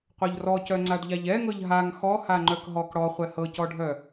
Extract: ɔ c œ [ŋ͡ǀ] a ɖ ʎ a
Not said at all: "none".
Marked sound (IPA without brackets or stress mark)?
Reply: ŋ͡ǀ